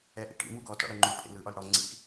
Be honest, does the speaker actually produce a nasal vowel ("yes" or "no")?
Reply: no